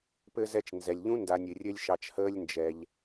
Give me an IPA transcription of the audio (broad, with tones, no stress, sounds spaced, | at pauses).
p ɘ˦ z ɛ˦ t͡ʃ n z ɛ˩ lʲ ʎ ũ˥ n d a˨ nʲ ɨ˩ rʲ ɘ˦ lʲ ʃ ɑ˨ t͡ʃ h əː˦ lʲ n d͡ʒ ɛ˨ ʎ